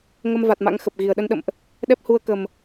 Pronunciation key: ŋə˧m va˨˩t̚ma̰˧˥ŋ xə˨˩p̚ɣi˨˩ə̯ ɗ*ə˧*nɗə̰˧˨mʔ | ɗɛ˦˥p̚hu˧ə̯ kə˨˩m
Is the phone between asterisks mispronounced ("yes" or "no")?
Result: no